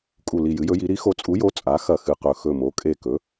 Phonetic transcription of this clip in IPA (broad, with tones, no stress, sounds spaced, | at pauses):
kʼ u˧˩ l i˧˩ j ɨ˩˥ j ɵ˩˥ j i˩˥ ɾ i˩˥ x o˩˥ t͡sʼ u˩˥ j o˩˥ t͡sʼ a˩˥ x ɐ˧˩ x ɨ˧˩ q ɵ˧˩ x ɵ˧˩ m o˩˥ kʼ e˧˩ k ɵ˩˥